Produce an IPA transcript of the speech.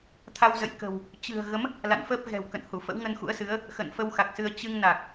t̪ʰa˧wzə̰˧˨j kə̤˨˩w | t͡ɕɨ̤˨˩ə̯ɣə˨˦m | la̰˧˨nfəː˦˥p̚ɣɛ̤˨˩wkə̰˧˨n hu˧˩fə̰˧˥wŋə˧nxṵ˧˥ə̯ sɨ˨˦ə̯ | xə̰˧˨nfə˧wxa˨˩k̚sɨ˧ə̯ t͡ɕɨ˧ŋna˨˩k̚

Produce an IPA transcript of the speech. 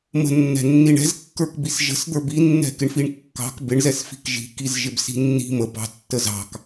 mə̤nːɛ̤ nːiɳɛ̤zkːə˞kbis ʒə̤sd̪ə˞b inːɛ̤kɪɳfiɳ kːɑ̤k bɪɳzɛsfi̤k ʒi̤kiz ʒɪbsi̤nːi̤ məbɑ̤ tːəzɑ̤k

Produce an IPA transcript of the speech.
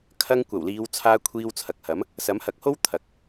kʰɐ˧ŋ kʷɐ˨˩wliː˨˧wt͡sʰaː˧ kʷʰiː˧wt͡sʰɐ˨k̚hɐ˨˥m | sɐ˨˥mhɐ˨k̚ho˥w t̪ʰɐ˨k̚

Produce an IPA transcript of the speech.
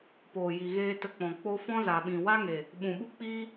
poː˨ji˨ɣeː˧ tə˧k͡pɔ̃˨ k͡po˧ fɔ̃˦za˨ɓĩ˨ wa˦ŋe˨ | ɓũ˨ɓu˦k͡piː˦

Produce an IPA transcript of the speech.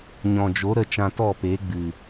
ɲɔ̃˨d͡ʒo˨˦ ɾə˦ t͡ʃã˧tɔ˦˨pe˨˦ ɡ͡bɨ˨

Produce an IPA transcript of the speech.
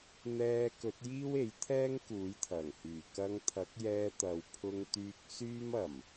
n̪ɛː˧kɵ˨˥t̚jiː˥w e˨˥jt̪ʰɛː˥ŋkuː˨˥jt̪ʰɐ˨˩ŋ hyː˨˩kɐ˧ŋt̪ʰɐ˨˥k̚jɛː˧ t̪ɐ˨˧w pʰʊ˧ŋt̪yː˧k̚ syː˥mɐ˨˩m

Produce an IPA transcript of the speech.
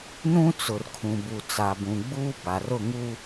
nũ˦ t͡sʊ˨rkʰũ˨ bu˨t͡sa˨bũ˨ɡ͡buː˦ ba˨rʊ˦˨ ŋu˦

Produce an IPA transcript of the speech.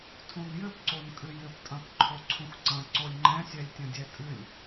tʰũnjɘpǀon kʼɨjɘptʼɐ̃p ǃʰoǀʰũxǀɐ̃ ǀolʲŋ͡ǃɛ̃sʲɛlʲ tʲɐ̃dʲɛtʼɨlʲ

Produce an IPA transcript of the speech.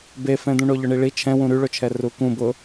befɛ̃d̪ũ ɳoʎʊɳiɭi t͡ʃʰɛ̃wũ ɾyɭʊt͡ʃʰɛ rukũ bʊ

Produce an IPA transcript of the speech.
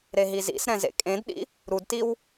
ɾeɦizḭsɾɛ̃ zḛkʼẽdɗḭ | ɾudtiw

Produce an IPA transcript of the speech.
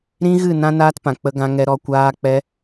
ɾĩ˦ɣɨ˦˨ nã˦naː˦tpã˨ k͡pə˧ɡã˧ŋɛ˧ ɾɔ˧kʷaː˦k͡pɛ˦

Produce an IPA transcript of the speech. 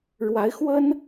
ɻwa˧˥ɪ̯xwə˥n

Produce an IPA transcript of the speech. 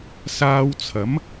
saː˧wt͡sʰɐ˨˥m

